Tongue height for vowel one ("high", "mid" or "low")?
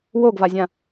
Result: mid